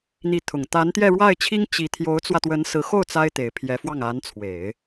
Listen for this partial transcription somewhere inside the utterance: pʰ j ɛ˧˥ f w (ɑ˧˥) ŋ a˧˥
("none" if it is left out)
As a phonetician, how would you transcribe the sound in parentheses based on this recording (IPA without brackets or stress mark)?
ɑ˥˩